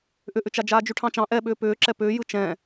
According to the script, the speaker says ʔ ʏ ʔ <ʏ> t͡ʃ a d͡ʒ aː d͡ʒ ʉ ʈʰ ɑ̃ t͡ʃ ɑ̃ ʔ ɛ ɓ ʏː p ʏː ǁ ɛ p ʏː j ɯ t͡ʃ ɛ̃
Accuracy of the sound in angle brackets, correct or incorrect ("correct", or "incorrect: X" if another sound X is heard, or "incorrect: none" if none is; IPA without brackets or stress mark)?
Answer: correct